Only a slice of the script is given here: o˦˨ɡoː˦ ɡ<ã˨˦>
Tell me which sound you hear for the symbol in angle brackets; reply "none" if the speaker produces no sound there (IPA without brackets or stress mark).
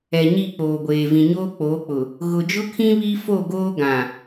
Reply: ã˨